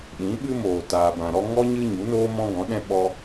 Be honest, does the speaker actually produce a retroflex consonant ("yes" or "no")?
no